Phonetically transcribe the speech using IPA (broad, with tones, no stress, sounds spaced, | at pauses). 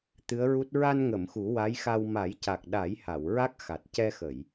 t̪ ɨ˧˥ ə̯ ɹ u˦˥ t̚ ɹ a˧ n ŋ ə˨˩˨ m x u˨˩˦ w a˧˥ j x a˧ w m a˨˩˦ j c a˨˩ k̚ ɗ a˨˩˦ j h a˨˩˨ w ɹ a˦˥ k̚ x a˨˩ t̚ c ɛ˧ x ə˨˩˨ j